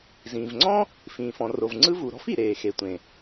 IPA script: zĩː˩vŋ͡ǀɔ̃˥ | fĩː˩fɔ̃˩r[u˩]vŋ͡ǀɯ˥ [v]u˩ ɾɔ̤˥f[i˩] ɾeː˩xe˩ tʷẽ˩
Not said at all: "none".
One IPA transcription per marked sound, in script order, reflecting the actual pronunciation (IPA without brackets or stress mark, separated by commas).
o˩, v, i˩